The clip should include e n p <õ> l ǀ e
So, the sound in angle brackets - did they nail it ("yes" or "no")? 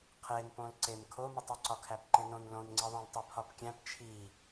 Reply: yes